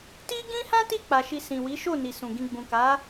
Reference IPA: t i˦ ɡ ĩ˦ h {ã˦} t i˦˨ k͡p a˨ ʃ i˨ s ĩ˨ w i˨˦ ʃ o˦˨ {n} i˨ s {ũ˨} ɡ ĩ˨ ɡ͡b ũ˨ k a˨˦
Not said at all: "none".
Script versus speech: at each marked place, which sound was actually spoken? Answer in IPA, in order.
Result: ã˦, n, ũ˨

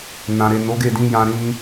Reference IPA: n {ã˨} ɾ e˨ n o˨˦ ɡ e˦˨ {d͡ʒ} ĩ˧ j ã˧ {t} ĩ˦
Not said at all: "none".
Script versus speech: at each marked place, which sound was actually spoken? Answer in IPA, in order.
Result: ã˨, d, ɾ

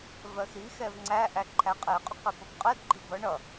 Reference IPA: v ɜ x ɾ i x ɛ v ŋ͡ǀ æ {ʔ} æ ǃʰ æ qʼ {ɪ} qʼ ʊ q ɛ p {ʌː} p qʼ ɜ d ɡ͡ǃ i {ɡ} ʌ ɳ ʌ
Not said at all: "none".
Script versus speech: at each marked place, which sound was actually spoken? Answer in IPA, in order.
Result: ʔ, ɛ, ʌ, b

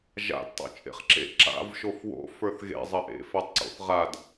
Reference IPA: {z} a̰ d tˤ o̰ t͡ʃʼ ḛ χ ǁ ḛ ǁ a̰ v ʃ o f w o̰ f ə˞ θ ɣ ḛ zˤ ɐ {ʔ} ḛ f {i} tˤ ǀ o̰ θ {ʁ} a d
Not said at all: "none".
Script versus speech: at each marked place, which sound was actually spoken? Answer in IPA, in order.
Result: ʒ, ʔ, e, ʁ

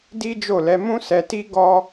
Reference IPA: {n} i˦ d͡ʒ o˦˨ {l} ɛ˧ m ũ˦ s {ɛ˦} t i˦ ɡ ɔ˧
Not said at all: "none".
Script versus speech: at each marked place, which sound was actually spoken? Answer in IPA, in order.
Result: d, l, ɛ˧

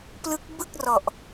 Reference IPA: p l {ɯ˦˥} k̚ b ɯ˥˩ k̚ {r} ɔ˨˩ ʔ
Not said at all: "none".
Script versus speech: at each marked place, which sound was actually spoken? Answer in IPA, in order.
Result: ɯ˦˥, r

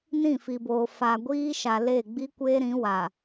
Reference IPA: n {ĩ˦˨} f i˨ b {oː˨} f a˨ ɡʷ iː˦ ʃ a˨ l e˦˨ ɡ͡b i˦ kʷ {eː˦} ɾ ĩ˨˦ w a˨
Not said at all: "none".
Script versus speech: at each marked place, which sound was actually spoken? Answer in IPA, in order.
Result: ĩ˦˨, oː˨, eː˦

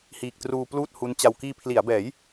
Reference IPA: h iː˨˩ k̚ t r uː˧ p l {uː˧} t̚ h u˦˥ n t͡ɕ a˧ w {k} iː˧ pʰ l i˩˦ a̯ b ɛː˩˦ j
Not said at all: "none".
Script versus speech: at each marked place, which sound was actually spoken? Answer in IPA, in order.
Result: uː˥˩, k

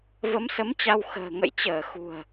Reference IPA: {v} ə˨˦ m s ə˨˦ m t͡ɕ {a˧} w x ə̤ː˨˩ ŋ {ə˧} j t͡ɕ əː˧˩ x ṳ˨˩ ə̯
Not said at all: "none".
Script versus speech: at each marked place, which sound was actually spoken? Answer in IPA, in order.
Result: v, a˧, ə̰˧˨

